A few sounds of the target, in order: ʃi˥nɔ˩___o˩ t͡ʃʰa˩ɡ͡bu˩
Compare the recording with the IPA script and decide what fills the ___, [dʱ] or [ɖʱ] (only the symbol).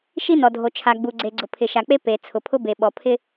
dʱ